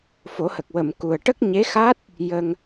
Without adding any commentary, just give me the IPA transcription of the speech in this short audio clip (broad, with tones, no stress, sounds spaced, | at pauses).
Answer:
f o˨˩˦ h ə˨˩ k̚ w ə˨˩˨ m k u˨˩ ə̯ ʈ ə˦˥ k̚ ɲ e˧˥ x a˦˥ t̚ | j ə˧ ŋ